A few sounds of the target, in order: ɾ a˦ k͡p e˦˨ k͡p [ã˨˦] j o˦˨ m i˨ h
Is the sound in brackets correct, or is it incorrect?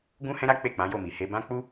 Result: correct